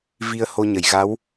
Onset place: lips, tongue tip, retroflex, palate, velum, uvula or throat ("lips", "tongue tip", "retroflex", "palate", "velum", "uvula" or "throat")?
lips